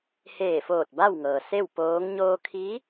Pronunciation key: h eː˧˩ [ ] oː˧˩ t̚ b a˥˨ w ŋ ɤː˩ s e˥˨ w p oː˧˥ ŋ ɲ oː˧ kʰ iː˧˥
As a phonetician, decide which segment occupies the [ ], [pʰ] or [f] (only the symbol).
f